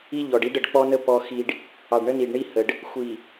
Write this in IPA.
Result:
i˦ ʎ ɔ˨ ɖ i˦ ɖ ə˨ ɖ k͡p ɔ˦ n ə˦ p ɔ˦ x i˨ ɖ | ɑ˨ ɖ ɳ ə˦ n i˨ ɖ ɳ i˦ h ə˨ ɖ | xʷ i˨

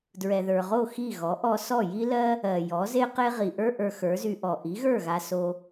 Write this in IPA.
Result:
d ɹ ɛ˩ ð ə˞˩ ʁ o˥˩ x i˥˩ ɣ ɔ˩˥ ʔ ɔ˧ s ɔ˥˩ j i˥ l ɜ˥ | ɜ˩ j ɔ˩˥ z e˥ q e˥ ʁ i˩ ʔ ə˞˥ ʔ ə˞˧ x ə˞˩˥ z y˧ ʔ ɔ˩ ʔ i˩˥ ɣ ə˞˥˩ ɣ a˧ s o˧

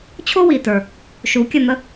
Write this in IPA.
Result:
t͡ɕʰ o˥ w i˨˩ t ə˞˨˩ | ʃ u˨˦ kʲ ə˥˨ n̪ ə˥

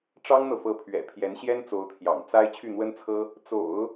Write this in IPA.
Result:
ʈ͡ʂ ɑ˥ ŋ n̪ ɤ˨ f ɤ˧˥ pʰ ɥ ɛ̰˨˩ pʰ j ɛ˧˥ n ɕ j ɛ˥ n t͡s o˧˥ ʊ̯ t̪ʰ j ɑ̰˨˩ ŋ t͡s a˥ ɪ̯ t͡ɕʰ y˥˩ n̪ w ə˥ n t͡sʰ ɤ˥ | t͡s o̰˨˩˦ ʊ̯

